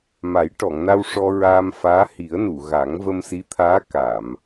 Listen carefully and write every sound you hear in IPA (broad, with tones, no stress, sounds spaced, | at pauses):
m a˨˩˦ j ʈ ɔ˨˩˨ ŋ n a˧ w ʂ ɔ˧ ɹ aː˧ m f aː˧˥ h i˨˩˦ ə̯ n u˨˩˨ ɣ a˨˩˦ ŋ v ə˧ m s i˧˥ t̪ʰ aː˧˥ k a˨˩˨ m